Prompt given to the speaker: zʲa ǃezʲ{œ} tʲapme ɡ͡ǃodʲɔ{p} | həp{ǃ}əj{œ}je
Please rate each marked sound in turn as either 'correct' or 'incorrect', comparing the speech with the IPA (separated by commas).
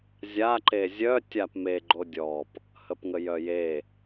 correct, correct, incorrect, correct